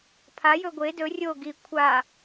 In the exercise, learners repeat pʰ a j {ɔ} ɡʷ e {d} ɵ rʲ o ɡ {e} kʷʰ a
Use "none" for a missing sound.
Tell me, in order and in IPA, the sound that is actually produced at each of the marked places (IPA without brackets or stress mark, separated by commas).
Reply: ɵ, d, i